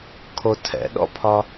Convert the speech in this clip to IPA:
kʰ o tʰ ɛ̰ ɗ ɔ̰ pʰ ɒ

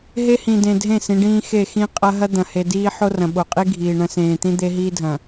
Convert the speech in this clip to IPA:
ɦ e˦ h ĩ˨ d ẽ˨ dʱ ẽ˦˨ s ĩ˨˦ ɖ ĩː˦ x e˦˨ x ĩ˦ qʼ ɐ˦ ɦ ɐ˦ d̪ ɐ̃˨ h e˨ d iː˦ ħ o˦ r ɐ̃˨ ɓ o˨ qʼ i˦ ɡʱ iː˨ ɳ ɐ̃˦ s ẽː˨ t̪ ĩ˦ d̪ e˦ ɦ iː˦ dʱ ɐ̃˨

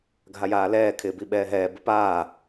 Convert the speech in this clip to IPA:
ɡʱ a j aː l ɛː kʰ ɪː b i ɓ ɛː ɦ ɛː b ɪ p aː

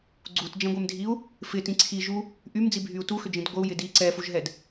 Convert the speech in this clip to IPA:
ɡ͡ǀ u t d͡ʒ ɛ̃ ɡʷ ɛ m dʱ i u̯ | f ɪ t ĩ ǀʰ i ʒ u | ʔ y m d͡z i bʱ y u̯ t u x ʏ d͡ʒ ĩ d ɡʷ ə u̯ j ɪ d i ǀ ɛ f u ʒ ɦ ɛ d

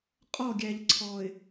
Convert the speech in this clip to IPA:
qʼ ɔ˦˨ ɡʲ æ˨ ʎ ǀʰ ɔ˨ ɪ̯

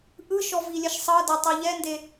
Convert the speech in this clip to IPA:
ʔ ɯ ʃ ɔ v i lʲ ɛ ʃ sˤ ɤ d ɛ tˤ ɛ ʎ ɛ n d e

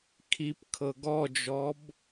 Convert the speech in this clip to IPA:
kʰ i p kʰ ɤ ɡ ɔ d͡ʒ ɔ b

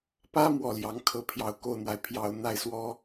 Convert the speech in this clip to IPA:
p ä˥ m w ɔ˥˩ l j ɑ˧˥ ŋ kʰ ɤ˥˩ pʰ j ɑ˧˥ ʊ̯ k o˥˩ ʊ̯ n̪ w a˩ ɪ̯ pʰ j ɑ˨˩ ʊ̯ n̪ a˥˩ ɪ̯ s w ɔ˥

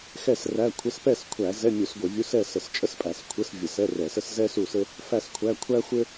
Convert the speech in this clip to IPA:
x ɛ˥˨ s r æ˧˥˧ kʷʰ ɘ˧˥˧ s p ɛ˥˨ s kʷʰ æ˧˩˧ z ɛ˧˥˧ mʲ u˧˩˧ s ɡʷ ɘ˧˩˧ vʲ u˧˥˧ s ɛ˥˨ s ə˧˩˧ s t͡ʃʼ ə˥ s pʼ æ˧˩˧ s kʷʰ ɘ˧˥˧ s vʲ ə˧˩˧ s ɛ˧˥˧ r ɛ˧˩˧ s ə˥ s z ɛ˥ s u˥˨ s ɘ˥ | f æ˥˨ s kʷʰ æ˧˥˧ kʷʰ æ˥ xʷ ɘ˥

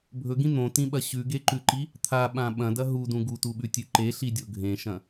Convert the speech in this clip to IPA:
bʱ ɵ ɡ ĩ n̪ õ t ĩ ɓ ɐ ɕ ʉ ɡ e ǃ ʉ ǃ i | t̪ʰ a ɓ ã ɓ ɐ̃ d ɐ ɦ u d ũ ɡ u t u ɓ ʉ tʲ ʉ ǃ e ɬ i dʲ o ɡʱ ẽ ʃ ɐ̃

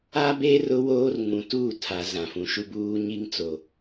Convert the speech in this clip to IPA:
a˦ b e˦ r ʊ˦ w oː˦ r ŋ ũ˨ t uː˦˨ tʰ a˨˦ z ã˨ f ũ˨ ʃ u˦ b uː˦ ɲ i˦ ŋ t͡s o˨

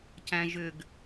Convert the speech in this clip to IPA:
c æ̃ ʒ ʏ ɡ

